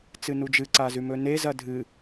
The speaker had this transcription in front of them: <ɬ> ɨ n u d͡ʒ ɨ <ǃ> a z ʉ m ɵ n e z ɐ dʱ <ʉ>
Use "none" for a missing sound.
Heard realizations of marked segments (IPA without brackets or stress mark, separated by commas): t͡s, ǀ, ɨ